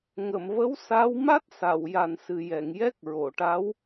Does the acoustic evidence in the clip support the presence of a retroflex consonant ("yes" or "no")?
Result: yes